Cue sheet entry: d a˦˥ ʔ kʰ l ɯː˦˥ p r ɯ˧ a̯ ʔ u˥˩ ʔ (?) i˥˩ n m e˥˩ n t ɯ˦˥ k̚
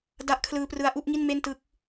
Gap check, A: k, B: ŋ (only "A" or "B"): B